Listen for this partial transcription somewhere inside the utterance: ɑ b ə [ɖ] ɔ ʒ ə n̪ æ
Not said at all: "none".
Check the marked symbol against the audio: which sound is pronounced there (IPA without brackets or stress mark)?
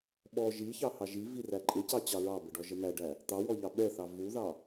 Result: ɖ